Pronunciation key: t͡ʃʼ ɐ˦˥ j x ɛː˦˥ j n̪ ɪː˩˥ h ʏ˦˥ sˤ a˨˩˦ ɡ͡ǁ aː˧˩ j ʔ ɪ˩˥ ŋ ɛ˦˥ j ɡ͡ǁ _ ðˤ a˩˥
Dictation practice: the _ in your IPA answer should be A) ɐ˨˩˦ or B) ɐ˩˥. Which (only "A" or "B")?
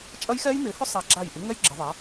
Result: A